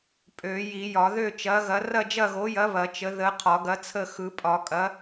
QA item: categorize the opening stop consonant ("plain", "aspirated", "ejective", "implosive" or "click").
ejective